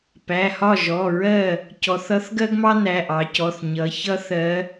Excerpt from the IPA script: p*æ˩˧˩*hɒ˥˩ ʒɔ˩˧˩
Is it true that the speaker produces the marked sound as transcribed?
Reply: yes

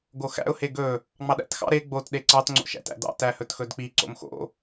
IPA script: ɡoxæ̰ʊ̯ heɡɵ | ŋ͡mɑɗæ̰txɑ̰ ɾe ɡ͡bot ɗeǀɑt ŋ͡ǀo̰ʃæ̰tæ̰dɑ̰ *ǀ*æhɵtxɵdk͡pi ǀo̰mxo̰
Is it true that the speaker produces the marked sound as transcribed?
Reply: no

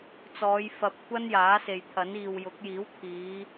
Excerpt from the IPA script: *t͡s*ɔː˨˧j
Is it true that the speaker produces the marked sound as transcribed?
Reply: yes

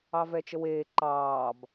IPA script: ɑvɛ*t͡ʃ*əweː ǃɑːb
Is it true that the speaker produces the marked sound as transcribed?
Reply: yes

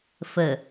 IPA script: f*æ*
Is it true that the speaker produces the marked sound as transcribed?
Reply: no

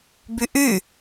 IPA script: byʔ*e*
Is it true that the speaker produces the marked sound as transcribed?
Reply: no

